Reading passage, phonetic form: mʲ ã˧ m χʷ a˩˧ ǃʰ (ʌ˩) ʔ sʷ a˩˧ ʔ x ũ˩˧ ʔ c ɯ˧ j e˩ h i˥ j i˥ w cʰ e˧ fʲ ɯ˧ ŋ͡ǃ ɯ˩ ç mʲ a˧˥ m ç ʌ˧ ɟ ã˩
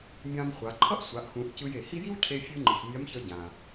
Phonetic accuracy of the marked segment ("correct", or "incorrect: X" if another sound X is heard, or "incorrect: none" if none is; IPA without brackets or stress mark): incorrect: ʌ˥